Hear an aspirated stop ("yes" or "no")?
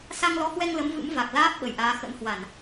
no